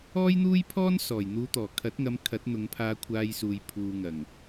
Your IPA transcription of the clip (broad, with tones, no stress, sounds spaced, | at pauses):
ɔː˥ j n̪ uː˥ j pʰ ɔː˥ n s ɔː˨˩ j n̪ uː˨˧ t̪ ɔː˨˩ kʰ ɐ˨˥ t̚ ŋ ɐ˨˧ m kʰ ɐ˨˥ t̚ n̪ ʊ˨˧ ŋ pʰ aː˧ kʷʰ aː˧ j s uː˨ j pʰ uː˨ ŋ ɐ˨˩ ŋ